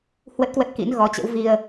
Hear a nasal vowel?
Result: no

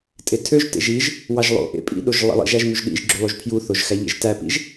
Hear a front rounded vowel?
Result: yes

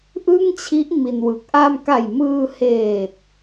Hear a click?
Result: no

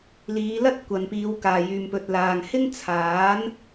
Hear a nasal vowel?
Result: no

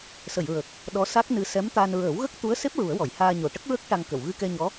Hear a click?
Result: no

